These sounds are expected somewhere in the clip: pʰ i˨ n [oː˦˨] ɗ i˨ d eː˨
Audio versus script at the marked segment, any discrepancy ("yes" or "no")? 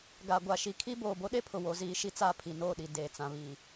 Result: no